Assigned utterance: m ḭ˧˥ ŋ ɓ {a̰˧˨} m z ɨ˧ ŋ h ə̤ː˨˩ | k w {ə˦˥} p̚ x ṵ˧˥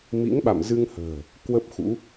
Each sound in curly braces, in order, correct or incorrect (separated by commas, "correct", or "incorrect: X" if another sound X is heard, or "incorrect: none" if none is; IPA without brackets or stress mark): correct, correct